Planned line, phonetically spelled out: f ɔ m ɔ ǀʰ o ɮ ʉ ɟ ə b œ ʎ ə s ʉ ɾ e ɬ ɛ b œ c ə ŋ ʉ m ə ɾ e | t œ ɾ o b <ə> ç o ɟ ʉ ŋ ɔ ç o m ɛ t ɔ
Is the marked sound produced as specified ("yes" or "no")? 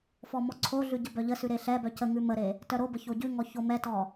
yes